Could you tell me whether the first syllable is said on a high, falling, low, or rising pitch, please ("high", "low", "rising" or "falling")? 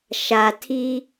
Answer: low